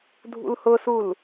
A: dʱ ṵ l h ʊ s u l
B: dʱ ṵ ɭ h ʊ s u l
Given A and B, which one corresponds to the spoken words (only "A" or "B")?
A